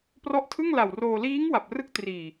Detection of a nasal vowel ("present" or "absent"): absent